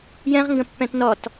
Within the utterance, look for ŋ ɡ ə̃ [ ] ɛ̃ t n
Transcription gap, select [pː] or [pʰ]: pː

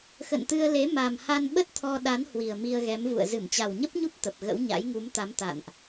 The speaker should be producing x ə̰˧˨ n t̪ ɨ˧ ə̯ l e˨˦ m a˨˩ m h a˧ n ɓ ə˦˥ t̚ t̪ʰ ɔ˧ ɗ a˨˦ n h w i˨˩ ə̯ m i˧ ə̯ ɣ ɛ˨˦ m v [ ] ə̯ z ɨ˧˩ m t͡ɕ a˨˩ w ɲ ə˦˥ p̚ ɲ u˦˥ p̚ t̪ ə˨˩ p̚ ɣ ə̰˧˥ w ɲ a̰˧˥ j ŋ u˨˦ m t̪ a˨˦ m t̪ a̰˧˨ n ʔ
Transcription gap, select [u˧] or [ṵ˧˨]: ṵ˧˨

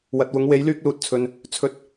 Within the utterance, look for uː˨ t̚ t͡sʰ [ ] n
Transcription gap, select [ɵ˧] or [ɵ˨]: ɵ˨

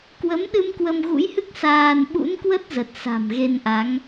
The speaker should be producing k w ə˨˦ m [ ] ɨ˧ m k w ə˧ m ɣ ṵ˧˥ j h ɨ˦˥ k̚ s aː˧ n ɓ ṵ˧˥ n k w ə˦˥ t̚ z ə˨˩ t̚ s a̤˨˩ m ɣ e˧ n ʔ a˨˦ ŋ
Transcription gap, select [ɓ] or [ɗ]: ɗ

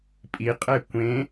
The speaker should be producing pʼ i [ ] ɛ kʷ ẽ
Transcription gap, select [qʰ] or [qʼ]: qʼ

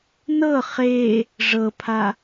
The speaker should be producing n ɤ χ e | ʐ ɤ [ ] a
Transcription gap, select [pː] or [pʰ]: pʰ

